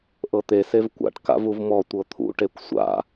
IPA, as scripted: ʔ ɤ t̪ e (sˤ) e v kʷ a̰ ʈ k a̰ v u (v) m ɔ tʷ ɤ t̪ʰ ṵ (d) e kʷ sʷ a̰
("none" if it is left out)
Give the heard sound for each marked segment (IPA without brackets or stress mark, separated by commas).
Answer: s, v, ʈ